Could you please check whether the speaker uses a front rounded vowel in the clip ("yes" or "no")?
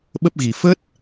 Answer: no